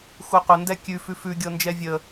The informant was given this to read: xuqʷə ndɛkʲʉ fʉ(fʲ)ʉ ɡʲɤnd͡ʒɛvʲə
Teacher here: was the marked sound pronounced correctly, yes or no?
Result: no